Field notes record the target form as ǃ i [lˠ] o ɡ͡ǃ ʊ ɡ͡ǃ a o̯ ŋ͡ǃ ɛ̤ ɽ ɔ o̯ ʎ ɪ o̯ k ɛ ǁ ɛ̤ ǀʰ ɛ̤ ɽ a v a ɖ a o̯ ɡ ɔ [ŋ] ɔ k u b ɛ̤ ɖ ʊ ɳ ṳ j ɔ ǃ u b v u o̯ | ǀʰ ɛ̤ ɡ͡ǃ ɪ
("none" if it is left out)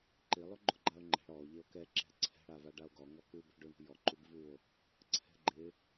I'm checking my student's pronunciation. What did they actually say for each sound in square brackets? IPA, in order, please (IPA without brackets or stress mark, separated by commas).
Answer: lˠ, ŋ